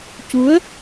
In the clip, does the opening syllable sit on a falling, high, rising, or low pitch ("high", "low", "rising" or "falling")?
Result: rising